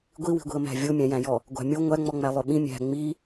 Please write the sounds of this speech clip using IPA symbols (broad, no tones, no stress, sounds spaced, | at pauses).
ɡʷ i w i̤ ɡʷ i̤ ə̯ m æ̤ vʲ o mʲ æ̃ j æ̃ j ɔ | ɡʷ æ̤ mʲ o ŋʷ æ ŋ͡m ɔ ŋ͡m æ lˠ ø ɓ ĩ mʲ æ̤ ŋ͡m i